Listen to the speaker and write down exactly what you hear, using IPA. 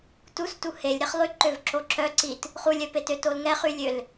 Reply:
t u s t u h e lʲ ɾ e χ lˠ y ǃ ø v ǁ o ǁ œ ǀ i t | χ u lʲ œ p e t ø t o l ŋ ɛ χ y lʲ ø l

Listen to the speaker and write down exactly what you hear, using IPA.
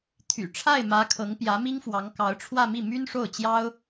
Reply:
t̪ʰ y̰˨˩ ʈ͡ʂʰ a˥˩ ɪ̯ m ä˧˥ kʰ ɤ˧˥ ŋ p j ä˧˥ m i˥ ŋ f w ɑ˧˥ ŋ k ɑ˧˥ ʊ̯ ʈ͡ʂʰ w ä˥˧ m i˥˩ m y˥ n ʂ o˥˩ ʊ̯ t͡ɕ j ɑ˥ ʊ̯

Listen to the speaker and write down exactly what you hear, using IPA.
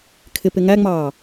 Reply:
kʰ ɪ p ɪ ŋ æ ŋ͡m ɑː

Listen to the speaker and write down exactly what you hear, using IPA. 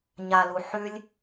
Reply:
ɲ a l u ħ ʉ lʲ

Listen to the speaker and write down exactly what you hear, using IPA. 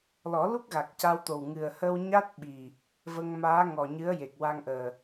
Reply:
l ɔ˨˩˦ l u˦˥ k̚ ɣ a˨˩ k̚ c a˧ w t̪ o˨˩ w ŋ ɨ˨˩ ə̯ h ə˧ w ɲ a˦˥ t̚ ɓ i˨˩ | v ə˧ ŋ m aː˧˥ ŋ ɔ˨˩ ɲ ɨ˧˥ ə̯ j e˨˩ k̚ w a˧ ŋ ʔ əː˨˩

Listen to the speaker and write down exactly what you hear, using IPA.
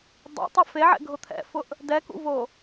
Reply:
dˤ ɛ̰ tˤ ɪ f e ʕ ɛ̰ ɡʱ ʊ t̪ʰ ɛ̰ f ʊ ʔ | d ɛ k ṵ v o

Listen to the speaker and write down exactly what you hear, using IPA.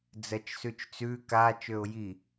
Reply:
d͡z ɜ t͡ʃ s ʉ t͡ʃ t͡s ʉ k a t͡ʃ ø ʊ̯ j i

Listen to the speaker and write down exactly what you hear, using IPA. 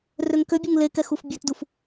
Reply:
r ø ŋ k ø bʲ u ŋ l e k ɛ x u f bʲ ø t d u f

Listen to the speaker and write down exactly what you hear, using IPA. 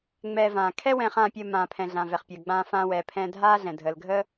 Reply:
ŋ͡m ɛː˧ v ãː˩ kʰ ɛ˥ w ɛ̃ː˧ χ ãː˧ pʲ əː˧ m ãː˩ pʰ ɛ̃˩ ɮ ã˩ v ɛ˩ χ pʲ əː˩ ɡ͡b ãː˧ f ãː˧ w ɛː˩ pʰ ɛ̃ː˧ dʱ aː˥ ɮ ɛ̃˩ dʱ əː˩ l ɡʱ əː˥

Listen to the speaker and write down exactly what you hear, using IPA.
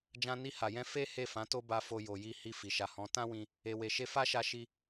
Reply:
d͡ʒ ã˧ n i˧ h a˨ j ɛ̃˧ f e˦ h e˦˨ f ã˨˦ t o˦ b a˧ f o˧ j o˨ j i˧ h i˧ f i˨ ʃ a˨ h ɔ̃˨˦ t ã˦ w ĩ˧ | e˨ w e˨ ʃ e˧ f a˦ ʃ a˧ ʃ i˧

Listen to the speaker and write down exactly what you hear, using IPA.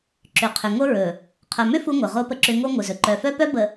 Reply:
ǁ ʏ˨ qʰ ʏ˨ ŋ o˦ ɹ ɵ˨ | qʰ œ˨ m ʏ˦ f u˦ ŋʷ œ˨ ʁ o˦ p ə˦ ǁ ʏ˦ ŋ o˦ ŋʷ ɨ˨ z ɵ˨ ǃ œ˨ f œ˦ p œ˦ b ə˨

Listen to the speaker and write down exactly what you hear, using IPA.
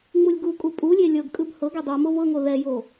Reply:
ŋ͡m u lʲ ɡ u kʼ u pʼ u lʲ e lʲ ɤ ɡ kʼ ɯ b h ɤ ɡ e dˤ u m o v ɤ ŋ o ð ɛ j o

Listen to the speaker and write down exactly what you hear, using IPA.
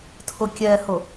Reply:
tʰ ʊ kʲ ɛ h ʊ

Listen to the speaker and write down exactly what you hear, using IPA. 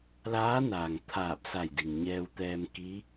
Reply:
l aː˧˥ n aː˩ ŋ t̪ʰ aː˧˩ p̚ s a˧˩ j d i˩ ŋ ɲ ɛː˧ w t̪ ɛː˧ m k i˧˥

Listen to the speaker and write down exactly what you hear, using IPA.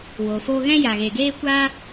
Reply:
w o˨ f oː˧ ɣ ɛ̃˦ j a˨ ɣ e˨ ɡ eː˦ kʷ aː˦

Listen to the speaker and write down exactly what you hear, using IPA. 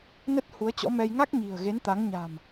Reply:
n ə˦˥ t̚ h u˨˦ ə̯ t͡ɕ ɔ̰˧˥ m ɛ˧ j ŋ a˦˥ k̚ ɲ i̤˨˩ ə̯ ɣ e˨˦ n t̪ a˨˦ ŋ ɲ a̤˨˩ m

